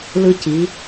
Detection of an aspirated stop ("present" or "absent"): absent